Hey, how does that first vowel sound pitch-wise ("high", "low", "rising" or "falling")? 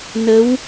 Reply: rising